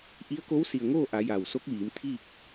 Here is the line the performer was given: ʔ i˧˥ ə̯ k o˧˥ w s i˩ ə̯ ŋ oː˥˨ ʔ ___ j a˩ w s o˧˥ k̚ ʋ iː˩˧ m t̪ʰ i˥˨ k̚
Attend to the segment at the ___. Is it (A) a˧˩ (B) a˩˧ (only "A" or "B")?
B